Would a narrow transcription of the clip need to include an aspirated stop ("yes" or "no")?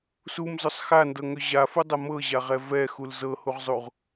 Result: no